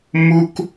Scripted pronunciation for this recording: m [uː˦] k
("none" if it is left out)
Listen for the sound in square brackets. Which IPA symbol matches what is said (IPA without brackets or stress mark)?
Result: u˦